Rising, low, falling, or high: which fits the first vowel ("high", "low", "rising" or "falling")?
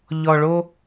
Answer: high